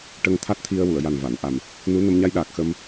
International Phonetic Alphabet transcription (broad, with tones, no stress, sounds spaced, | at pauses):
ʈ ə˧ ŋ t̪ʰ a˦˥ t̚ t̪ʰ i˧ ə̯ w u˨˩˨ ə̯ j a˨˩ n v a˨˩˨ n ʔ a˨˩ m | n u˧˥ n ə˧ m ɲ a˧ j ɗ aː˨˩ k̚ x ə˧ m